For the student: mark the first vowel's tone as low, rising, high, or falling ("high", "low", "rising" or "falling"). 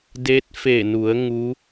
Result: rising